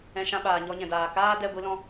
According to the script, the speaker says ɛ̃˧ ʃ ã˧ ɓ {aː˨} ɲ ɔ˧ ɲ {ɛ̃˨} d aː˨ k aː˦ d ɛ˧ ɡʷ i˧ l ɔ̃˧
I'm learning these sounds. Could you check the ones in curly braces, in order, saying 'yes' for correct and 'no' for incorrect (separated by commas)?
yes, yes